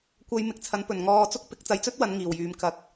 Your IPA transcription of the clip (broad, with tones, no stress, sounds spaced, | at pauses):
kʷ ɐ˧ j m ɪ˨ k̚ t͡sʰ ɐ˨˥ n p ɵ˨˩ n ŋ ɔː˧ t͡s ʊ˥ k̚ p ɪ˨˥ k̚ t͡s ɐ˧ j t͡s ɵ˥ t̚ w ɐ˨˧ n ŋ iː˨˩ w j yː˨ m k ɐ˨ k̚